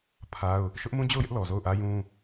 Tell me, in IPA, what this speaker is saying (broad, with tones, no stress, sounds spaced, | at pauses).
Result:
pʰ a˦ ʊ̯ | ʃ ʊ˦ ʔ m ũ˦ d͡ʑ o˦˨ ʊ̯ j ɪ˦ ʔ l ɔ˨ z o˦˨ ʊ̯ ʔ ä˦ j ũ˦